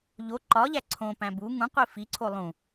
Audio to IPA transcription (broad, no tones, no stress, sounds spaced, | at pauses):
ʎ o ǃ ɒ ʎ æ ǀʰ õ p æ̃ b u ŋ ũ qʷ i f i ǀʰ o lˠ ũ